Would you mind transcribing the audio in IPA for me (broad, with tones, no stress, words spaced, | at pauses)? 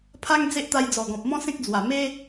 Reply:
pʰa˦ŋ d͡ze˦ʔt̪a˧jd͡zɔ˨˩ɡɔ̃˨p̚ mɔ̃˦sẽ˦k̚d͡zwa˨˩ me˦